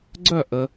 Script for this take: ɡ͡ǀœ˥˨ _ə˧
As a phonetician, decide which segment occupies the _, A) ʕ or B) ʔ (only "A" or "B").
B